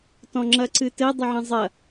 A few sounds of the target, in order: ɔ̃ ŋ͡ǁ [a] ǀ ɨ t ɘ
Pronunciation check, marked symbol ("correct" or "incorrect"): incorrect